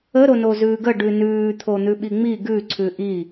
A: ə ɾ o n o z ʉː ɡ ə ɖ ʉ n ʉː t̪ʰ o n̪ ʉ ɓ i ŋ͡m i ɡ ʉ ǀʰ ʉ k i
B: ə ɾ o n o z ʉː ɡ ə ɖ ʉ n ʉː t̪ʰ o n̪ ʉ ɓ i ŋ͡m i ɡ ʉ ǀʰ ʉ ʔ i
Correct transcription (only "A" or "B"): B